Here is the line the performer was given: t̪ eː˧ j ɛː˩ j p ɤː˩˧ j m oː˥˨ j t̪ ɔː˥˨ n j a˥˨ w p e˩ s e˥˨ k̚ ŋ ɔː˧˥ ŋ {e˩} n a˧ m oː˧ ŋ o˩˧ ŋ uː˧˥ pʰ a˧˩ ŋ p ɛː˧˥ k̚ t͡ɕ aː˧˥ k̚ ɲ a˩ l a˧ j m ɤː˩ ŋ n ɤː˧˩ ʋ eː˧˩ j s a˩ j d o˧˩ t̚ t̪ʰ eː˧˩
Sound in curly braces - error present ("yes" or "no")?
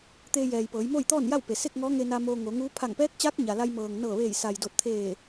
yes